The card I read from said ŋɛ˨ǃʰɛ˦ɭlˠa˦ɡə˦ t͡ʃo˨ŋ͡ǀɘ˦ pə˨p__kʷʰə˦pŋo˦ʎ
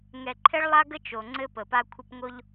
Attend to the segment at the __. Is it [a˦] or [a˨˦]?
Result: a˦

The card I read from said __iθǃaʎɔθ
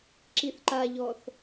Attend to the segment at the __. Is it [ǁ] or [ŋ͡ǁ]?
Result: ǁ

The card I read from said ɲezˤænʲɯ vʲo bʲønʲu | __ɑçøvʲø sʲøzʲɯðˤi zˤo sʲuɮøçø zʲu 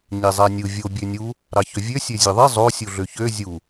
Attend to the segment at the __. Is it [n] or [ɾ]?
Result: ɾ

